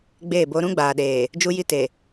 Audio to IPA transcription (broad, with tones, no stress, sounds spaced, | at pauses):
ɡ͡b eː˦˨ b o˦ ɾ ũ˦ ɡ͡b aː˨ ɗ eː˨ | d͡ʒ u˦ j i˦ t e˨